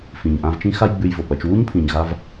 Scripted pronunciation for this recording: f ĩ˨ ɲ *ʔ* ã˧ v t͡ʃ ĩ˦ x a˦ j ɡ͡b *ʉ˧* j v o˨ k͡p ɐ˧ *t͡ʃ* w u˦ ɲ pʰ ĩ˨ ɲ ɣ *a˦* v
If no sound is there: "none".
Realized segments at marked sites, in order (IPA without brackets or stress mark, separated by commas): ʔ, ʉ˧, t͡ʃ, a˧